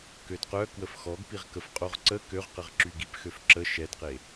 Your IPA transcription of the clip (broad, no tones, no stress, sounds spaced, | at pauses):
k ø d q œ k w ə f x ɔ ɡ p i ʁ k ə f qʼ o ʁ ǀ ə k ø ʁ q ə ʁ ǁ y ɡ i p x ø f ǁ ə ʃ ɛ d q e